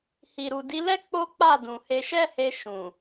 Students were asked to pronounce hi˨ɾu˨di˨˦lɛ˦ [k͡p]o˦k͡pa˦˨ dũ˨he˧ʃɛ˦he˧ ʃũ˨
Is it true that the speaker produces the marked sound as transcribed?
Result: yes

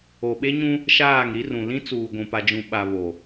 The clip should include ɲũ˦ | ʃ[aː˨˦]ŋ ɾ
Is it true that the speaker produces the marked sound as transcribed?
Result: no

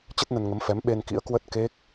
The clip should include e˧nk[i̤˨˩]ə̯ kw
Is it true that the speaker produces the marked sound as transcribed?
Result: no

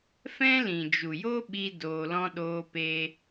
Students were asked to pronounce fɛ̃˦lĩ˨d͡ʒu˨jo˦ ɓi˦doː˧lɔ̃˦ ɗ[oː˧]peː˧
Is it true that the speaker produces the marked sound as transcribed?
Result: yes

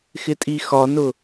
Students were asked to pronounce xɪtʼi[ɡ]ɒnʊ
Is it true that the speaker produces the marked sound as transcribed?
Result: no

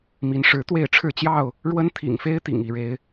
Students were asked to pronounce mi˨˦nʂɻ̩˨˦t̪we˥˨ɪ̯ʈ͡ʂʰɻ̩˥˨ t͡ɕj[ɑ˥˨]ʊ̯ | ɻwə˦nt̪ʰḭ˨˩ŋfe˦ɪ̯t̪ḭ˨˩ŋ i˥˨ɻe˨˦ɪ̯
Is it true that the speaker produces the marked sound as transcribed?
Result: yes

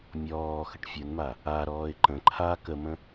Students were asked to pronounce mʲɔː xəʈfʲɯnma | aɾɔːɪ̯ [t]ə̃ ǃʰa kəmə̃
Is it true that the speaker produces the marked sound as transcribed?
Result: no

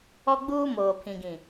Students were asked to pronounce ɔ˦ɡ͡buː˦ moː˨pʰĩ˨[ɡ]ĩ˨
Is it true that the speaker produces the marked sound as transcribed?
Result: yes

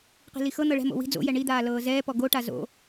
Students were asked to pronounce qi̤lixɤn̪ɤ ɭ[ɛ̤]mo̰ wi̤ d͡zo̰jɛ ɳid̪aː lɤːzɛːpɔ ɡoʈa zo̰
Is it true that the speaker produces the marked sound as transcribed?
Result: yes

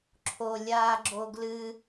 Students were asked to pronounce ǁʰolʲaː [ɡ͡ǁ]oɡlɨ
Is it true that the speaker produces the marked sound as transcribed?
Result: yes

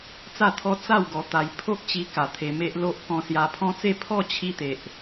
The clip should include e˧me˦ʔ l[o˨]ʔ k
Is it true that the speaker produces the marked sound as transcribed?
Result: no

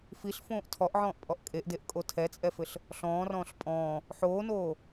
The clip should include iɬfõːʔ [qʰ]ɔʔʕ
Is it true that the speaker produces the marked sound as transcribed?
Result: no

